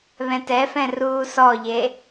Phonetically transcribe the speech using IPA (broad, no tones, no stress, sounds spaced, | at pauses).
β ɛ̃ t ɛ f ɛ̃ r uː s ɔ ʎ e